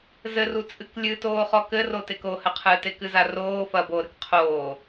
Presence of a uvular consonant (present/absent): present